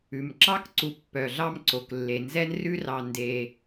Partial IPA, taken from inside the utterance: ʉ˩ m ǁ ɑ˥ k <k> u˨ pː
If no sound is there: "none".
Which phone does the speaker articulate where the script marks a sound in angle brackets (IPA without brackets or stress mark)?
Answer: ǀ